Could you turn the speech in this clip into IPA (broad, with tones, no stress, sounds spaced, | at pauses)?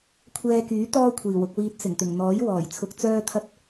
kʷʰ ɛː˧ k yː˨˥ t̪ ɔː˥ kʷʰ iː˨˩ w ʊ˧ k̚ w iː˧ t̚ s ɪ˨˩ ŋ t̪ ɪ˨˩ ŋ n̪ ɔː˨˥ j w ɔː˨˩ j t͡sʰ ʊ˧ k̚ t͡s œː˥ t̪ʰ ɐ˥ t̚